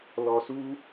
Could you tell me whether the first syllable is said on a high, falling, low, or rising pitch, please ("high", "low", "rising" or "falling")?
low